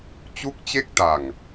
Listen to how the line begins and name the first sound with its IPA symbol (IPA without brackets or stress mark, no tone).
t͡ɕ